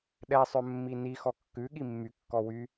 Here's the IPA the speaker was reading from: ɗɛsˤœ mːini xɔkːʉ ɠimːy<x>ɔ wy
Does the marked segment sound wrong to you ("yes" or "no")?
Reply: yes